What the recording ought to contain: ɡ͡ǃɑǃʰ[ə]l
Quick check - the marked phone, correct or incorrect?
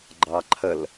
correct